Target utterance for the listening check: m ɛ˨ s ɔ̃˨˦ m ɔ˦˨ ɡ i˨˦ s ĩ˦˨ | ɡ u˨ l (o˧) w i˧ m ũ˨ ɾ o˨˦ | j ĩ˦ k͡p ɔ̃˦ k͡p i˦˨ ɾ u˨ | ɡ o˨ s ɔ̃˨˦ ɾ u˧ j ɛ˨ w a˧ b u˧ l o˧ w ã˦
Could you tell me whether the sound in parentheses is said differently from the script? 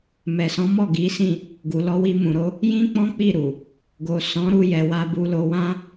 yes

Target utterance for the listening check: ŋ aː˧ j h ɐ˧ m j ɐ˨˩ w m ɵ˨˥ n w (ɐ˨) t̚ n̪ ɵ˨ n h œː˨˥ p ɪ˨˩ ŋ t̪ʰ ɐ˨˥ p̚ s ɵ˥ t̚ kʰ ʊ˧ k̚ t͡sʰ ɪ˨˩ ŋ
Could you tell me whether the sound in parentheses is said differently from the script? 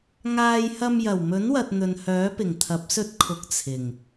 no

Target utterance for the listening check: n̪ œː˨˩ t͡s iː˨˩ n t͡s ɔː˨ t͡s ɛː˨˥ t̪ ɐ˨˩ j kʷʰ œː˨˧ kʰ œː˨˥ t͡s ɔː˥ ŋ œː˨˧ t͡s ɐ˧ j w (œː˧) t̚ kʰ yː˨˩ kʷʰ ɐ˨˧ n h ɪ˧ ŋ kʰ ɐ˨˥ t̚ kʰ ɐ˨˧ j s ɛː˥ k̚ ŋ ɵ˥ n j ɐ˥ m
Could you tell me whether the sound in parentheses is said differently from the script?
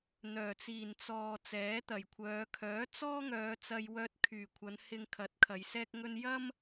no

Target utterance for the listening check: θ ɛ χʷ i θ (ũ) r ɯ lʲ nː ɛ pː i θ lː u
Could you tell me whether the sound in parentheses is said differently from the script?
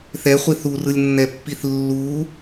yes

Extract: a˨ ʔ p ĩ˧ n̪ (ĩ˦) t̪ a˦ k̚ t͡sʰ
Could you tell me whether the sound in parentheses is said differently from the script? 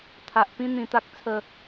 yes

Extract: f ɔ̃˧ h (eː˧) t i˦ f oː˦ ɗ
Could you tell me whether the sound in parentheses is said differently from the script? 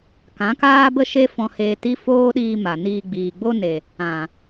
no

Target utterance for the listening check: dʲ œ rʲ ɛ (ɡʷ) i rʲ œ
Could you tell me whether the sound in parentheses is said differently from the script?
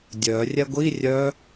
no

